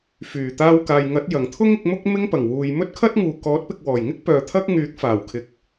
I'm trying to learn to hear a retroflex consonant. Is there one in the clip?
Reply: no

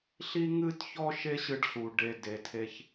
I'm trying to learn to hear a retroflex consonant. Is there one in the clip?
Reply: yes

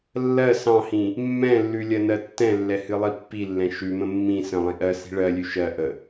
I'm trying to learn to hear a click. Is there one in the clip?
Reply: no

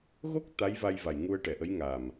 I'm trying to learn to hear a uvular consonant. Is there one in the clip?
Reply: no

